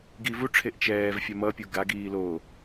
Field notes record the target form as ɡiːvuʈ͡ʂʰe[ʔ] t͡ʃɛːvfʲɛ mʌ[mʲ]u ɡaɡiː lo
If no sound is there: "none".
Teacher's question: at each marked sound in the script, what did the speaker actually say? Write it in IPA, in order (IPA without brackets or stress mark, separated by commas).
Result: ʔ, pʲ